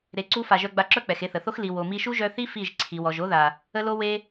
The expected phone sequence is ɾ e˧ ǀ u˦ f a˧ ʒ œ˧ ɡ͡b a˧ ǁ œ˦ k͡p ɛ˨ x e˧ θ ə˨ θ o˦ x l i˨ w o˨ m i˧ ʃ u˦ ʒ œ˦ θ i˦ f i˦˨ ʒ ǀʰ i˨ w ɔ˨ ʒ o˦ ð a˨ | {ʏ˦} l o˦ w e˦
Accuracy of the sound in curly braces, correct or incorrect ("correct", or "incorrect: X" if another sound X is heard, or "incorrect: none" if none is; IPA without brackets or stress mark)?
incorrect: ə˦